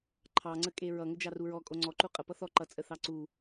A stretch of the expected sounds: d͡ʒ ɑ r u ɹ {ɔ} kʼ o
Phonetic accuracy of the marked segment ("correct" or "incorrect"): correct